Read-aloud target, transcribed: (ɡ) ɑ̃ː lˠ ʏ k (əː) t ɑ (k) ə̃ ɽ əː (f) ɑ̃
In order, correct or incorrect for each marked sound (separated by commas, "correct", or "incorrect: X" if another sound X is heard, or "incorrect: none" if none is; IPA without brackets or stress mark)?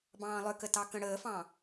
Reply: incorrect: b, incorrect: ə, correct, correct